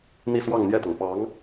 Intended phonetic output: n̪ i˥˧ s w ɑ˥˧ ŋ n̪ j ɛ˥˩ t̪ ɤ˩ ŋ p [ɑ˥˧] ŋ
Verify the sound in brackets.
incorrect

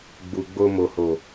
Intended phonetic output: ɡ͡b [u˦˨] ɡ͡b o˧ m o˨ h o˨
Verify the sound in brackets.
incorrect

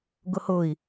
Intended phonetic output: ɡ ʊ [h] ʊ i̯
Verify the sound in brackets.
correct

